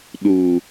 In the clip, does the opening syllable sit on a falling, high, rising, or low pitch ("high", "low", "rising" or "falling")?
low